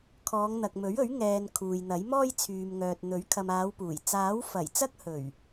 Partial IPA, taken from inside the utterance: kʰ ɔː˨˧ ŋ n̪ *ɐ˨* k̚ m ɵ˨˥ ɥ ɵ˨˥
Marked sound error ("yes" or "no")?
no